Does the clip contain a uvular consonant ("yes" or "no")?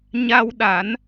no